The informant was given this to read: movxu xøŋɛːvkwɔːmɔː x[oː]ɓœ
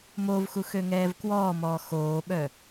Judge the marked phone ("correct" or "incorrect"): correct